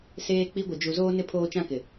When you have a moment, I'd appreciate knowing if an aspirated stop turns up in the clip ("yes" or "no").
yes